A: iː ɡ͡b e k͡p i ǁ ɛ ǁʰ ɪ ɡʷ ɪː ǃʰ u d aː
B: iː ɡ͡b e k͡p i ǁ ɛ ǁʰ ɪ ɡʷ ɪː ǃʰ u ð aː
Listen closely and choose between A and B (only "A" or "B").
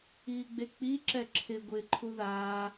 B